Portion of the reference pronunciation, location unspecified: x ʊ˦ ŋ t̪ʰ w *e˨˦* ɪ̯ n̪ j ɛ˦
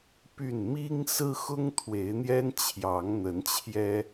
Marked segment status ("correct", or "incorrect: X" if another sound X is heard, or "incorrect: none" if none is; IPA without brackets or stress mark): correct